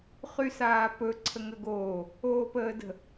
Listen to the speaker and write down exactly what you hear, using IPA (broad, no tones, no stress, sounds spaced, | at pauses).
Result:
χ y s aː p ɵ ǀʰ ə ŋ ə ɡ oː | oː p əː d ə̤